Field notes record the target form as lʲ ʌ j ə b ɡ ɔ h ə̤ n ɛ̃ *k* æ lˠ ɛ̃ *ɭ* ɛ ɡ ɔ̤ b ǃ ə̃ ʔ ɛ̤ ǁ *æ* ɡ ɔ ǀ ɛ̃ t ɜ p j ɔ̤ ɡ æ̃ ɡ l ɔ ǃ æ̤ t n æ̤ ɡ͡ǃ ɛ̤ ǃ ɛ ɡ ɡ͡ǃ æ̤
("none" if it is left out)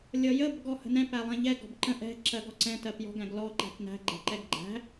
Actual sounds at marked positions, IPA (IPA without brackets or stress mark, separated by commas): p, ʎ, ɜ